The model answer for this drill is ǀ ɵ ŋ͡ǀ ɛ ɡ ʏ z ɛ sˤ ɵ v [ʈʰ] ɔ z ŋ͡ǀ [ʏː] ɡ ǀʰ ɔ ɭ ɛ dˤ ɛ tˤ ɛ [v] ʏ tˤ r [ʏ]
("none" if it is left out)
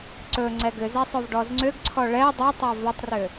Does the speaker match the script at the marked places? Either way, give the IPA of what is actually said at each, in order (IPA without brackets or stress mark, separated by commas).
ɖ, ʏ, v, ʏ